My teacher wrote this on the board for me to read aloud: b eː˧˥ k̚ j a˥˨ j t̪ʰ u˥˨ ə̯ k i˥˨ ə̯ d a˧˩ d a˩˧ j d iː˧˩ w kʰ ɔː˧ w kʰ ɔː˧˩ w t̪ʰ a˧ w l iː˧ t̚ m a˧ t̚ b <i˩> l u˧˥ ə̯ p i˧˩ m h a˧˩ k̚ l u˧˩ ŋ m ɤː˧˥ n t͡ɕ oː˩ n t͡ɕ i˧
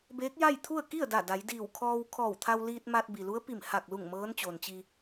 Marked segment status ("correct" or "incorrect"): correct